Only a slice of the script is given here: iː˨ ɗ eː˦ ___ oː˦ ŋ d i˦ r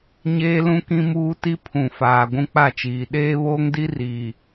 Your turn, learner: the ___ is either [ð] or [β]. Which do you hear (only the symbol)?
β